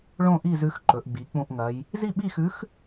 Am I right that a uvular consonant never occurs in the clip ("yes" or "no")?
yes